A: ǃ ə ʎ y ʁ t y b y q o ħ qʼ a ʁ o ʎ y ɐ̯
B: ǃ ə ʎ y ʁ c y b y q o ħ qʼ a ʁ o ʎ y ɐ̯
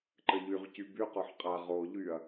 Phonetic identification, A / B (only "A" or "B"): B